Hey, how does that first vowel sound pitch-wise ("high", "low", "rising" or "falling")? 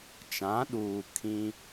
rising